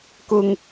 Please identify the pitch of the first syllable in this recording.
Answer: high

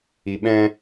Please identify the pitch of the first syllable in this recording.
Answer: low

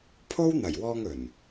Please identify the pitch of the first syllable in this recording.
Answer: high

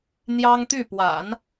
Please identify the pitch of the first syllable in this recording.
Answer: high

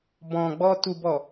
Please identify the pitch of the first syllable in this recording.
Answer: low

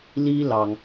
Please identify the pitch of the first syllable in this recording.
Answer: high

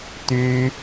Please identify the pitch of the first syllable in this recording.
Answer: high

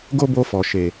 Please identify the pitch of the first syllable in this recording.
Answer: high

